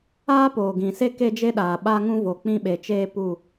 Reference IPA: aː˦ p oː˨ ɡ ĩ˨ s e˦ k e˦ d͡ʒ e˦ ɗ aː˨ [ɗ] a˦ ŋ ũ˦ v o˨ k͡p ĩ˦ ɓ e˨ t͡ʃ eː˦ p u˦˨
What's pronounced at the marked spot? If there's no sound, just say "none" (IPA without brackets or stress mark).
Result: ɓ